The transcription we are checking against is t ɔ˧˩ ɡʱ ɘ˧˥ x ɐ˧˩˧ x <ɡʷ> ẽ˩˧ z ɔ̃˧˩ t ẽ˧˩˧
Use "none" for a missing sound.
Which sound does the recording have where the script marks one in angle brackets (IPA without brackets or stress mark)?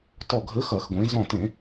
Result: ɡʷ